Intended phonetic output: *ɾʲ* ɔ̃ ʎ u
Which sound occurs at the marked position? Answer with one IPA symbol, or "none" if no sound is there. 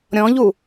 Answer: ɾʲ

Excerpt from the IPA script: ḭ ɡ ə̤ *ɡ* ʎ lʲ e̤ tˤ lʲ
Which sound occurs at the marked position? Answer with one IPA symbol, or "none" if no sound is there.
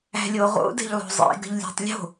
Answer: none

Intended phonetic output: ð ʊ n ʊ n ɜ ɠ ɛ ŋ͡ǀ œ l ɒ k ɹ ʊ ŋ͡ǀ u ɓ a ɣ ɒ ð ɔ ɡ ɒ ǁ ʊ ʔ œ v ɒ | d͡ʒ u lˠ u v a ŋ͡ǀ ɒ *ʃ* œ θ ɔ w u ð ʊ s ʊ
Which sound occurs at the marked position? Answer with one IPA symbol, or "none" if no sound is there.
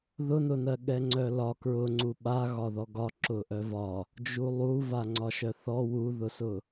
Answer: ʃ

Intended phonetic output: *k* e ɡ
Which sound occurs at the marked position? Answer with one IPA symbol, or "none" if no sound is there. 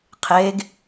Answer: qʰ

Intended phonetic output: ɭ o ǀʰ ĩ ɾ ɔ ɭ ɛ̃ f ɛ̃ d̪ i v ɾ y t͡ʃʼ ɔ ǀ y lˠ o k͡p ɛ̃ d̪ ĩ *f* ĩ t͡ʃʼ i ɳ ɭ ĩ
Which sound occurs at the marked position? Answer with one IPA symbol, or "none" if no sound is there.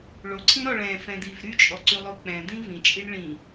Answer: v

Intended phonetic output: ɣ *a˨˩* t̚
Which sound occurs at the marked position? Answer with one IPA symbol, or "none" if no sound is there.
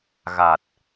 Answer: a˨˩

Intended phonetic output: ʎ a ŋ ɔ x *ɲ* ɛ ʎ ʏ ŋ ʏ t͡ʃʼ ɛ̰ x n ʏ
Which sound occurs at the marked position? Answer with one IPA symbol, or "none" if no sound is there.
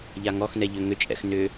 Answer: n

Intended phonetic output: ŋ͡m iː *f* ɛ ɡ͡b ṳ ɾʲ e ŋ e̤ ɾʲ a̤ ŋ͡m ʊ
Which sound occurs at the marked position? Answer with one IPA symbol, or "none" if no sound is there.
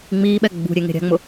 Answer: ɓ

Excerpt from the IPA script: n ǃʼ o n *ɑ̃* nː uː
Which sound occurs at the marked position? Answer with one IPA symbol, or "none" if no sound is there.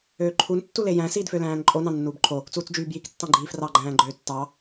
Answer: ɑ̃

